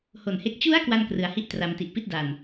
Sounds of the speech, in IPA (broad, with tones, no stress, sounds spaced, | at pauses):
h o˨˩ n h e˦˥ k̚ t͡ɕ u˦˥ a̯ k w a˥˩ n k r ɯ˩˦ a̯ h i˥˩ ʔ t r a˧ m t i˨˩ ʔ p i˥˩ t̚ d a˨˩ n